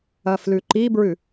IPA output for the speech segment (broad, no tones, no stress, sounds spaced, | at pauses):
ɐ f l ʉ ǃ i b ɹ ʉ